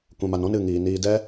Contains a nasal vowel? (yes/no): yes